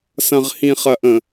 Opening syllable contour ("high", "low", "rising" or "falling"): low